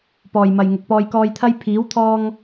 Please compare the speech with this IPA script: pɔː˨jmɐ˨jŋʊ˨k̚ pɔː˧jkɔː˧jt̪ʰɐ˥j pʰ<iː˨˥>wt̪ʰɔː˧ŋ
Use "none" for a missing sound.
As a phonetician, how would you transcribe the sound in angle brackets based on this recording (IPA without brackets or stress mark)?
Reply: iː˨˥